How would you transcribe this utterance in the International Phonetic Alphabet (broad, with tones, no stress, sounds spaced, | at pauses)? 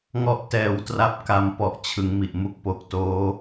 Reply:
ŋ ɔ˦˥ ʔ t ɛː˨˩ w t r a˦˥ p̚ k a˧ m p ɔ˨˩ ʔ t͡ɕʰ ɯ˩˦ ŋ m i˨˩ ʔ m u˦˥ k̚ p o˨˩ k̚ t oː˦˥